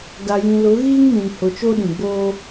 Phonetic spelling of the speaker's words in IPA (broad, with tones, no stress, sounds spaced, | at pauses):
d a˨ j ĩ˨ l ʊ˨˦ ɣ iː˦ ŋ m ĩ˨ n h ʊ˨ t͡ʃ oː˦ ɗ ĩ˨ ɡ͡b oː˦